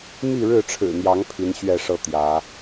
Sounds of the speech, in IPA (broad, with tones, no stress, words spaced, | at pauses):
mi˥˨ɻɻ̩˥˨ʈ͡ʂʰɻ̩˨˩n̪jɑ˨˦ŋ pʰi˨˦nɕɥɛ˥˨ʂɤ˥˨ t̪jä˨˦